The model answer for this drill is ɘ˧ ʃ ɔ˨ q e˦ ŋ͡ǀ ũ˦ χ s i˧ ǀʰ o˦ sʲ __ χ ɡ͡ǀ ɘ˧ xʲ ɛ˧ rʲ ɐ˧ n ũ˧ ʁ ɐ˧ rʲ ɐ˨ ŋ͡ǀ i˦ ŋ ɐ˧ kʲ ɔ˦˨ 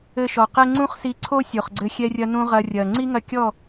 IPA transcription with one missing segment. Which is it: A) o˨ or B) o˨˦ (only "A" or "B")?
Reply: A